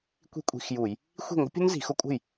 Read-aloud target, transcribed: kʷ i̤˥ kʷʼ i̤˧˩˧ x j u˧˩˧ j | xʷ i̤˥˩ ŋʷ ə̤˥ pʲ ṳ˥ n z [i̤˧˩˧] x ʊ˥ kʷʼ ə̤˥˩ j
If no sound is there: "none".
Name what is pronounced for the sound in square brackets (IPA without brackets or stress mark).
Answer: i̤˧˩˧